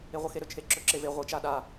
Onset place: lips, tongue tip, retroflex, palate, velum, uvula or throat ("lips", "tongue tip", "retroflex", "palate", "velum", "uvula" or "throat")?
uvula